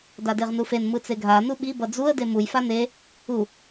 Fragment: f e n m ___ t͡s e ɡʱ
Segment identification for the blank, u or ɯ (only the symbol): ɯ